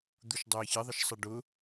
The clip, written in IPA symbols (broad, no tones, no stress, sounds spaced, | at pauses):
d̪ u ʃ dˤ ʊː j ç ɪ ðˤ ə ʃ sˤ ʌ ɖ ʊ